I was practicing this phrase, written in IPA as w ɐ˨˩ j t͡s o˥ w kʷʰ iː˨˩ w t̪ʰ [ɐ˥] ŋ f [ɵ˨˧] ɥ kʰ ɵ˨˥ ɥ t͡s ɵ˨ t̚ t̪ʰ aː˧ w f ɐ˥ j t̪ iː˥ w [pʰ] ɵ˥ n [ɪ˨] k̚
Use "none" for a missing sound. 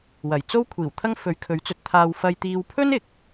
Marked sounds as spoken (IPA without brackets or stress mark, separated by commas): ɐ˥, ɵ˨˧, pʰ, ɪ˨